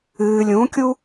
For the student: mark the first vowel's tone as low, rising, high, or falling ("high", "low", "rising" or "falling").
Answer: low